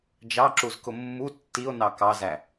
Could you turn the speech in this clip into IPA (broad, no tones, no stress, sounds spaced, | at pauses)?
d͡ʒ ɑ ǁ u z k ʊ mː u tː i o̯ n ɑ k ɑ z æ